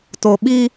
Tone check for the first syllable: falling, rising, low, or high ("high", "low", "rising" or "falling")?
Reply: low